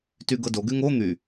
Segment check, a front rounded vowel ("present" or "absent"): present